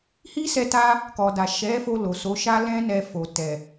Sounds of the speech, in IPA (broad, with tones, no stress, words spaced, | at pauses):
hi˦sɛ˧ ta˧ | kɔ˨da˨ ʃɛ˨˦ fo˧lo˨so˨˦ ʃa˦lɛ̃˦ nɛ˧fo˨ tɛ˨